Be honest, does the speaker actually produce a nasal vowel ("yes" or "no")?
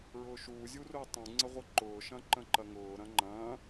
yes